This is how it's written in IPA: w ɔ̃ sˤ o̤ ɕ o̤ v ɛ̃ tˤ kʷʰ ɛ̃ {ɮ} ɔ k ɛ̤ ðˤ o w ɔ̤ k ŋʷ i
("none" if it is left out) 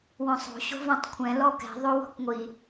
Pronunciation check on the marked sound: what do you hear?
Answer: l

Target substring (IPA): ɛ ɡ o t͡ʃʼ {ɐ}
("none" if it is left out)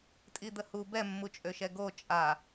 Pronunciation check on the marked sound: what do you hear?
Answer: a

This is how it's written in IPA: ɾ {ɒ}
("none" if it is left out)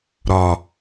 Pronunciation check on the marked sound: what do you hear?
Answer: ɒ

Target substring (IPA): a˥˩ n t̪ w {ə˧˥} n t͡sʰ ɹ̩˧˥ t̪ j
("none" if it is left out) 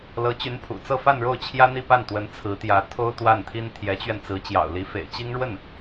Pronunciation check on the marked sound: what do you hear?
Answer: ə˧˥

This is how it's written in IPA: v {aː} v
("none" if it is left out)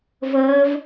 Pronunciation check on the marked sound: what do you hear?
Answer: əː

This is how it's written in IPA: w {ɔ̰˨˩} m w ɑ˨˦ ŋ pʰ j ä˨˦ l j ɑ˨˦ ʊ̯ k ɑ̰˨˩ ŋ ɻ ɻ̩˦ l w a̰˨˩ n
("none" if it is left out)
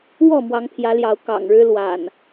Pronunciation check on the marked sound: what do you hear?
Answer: ɔ˥˨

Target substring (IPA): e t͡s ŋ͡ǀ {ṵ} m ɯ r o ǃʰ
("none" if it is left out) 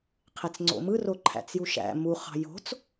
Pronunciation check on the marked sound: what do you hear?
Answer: o̰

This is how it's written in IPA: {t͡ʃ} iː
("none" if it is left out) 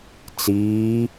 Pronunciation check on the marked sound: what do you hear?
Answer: t͡s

